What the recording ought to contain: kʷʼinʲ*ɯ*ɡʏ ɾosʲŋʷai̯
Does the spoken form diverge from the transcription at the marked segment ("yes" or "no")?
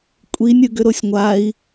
no